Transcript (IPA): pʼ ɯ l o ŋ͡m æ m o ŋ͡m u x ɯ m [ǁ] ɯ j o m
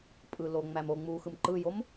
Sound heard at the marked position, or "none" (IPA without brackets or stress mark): ǃ